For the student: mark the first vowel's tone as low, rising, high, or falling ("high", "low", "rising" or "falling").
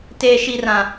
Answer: high